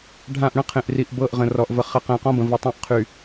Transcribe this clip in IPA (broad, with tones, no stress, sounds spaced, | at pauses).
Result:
ɖʱ ã˦˨ ʔ ɽ ə̃˦ qʰ ẽ˨ ʔ r i˨ ʔ b ɤ˦˨ ʔ ʁ ə̃˨ r ɔ˨ ʔ v ə˨ χ ɘ˨˦ q ə̃ː˨ q ɔ̃˦ b ə̃˨ v ɘ˨˦ tˤ ã˦ ʔ qʰ y˨